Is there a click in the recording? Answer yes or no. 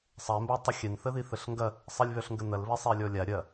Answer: no